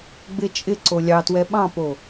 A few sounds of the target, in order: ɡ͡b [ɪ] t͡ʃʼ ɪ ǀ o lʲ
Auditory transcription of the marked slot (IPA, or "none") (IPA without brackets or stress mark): ɪ